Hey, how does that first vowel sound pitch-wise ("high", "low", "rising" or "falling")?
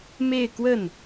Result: falling